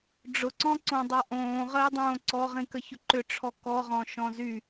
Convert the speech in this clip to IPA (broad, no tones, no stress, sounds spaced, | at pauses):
ɖ͡ʐ ʊ ǀ ɔ̃ ǀ õ dˤ a ʔ õː ʁ əː dˤ õː ǀ ɔ ʁ ĩ k ə ç ʊ ǃ ʏ ʈ͡ʂʰ ɔ k ɔ ʁ ɔ̃ ʃ ɔ̃ z y